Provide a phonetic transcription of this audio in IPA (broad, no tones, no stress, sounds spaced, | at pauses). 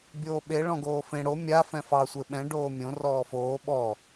bʲ oː ɓ e ɭ ɔ̃ ɡ oː f ẽ ɽ o mʲ a f ɛ̃ f ɑ sʷ e ɓ ɛ̃ ɖ oː mʲ õ r ɔː f oː ɓ ɔ